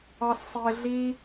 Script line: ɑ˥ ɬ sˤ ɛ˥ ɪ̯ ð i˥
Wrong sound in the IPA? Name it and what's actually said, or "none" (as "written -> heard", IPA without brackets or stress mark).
ð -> ɮ